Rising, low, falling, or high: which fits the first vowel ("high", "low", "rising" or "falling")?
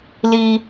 high